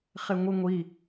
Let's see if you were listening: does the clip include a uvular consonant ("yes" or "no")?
yes